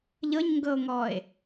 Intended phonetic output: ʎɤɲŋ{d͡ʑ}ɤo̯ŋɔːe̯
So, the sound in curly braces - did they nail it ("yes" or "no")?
no